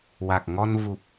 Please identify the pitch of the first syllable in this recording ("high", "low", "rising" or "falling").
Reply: low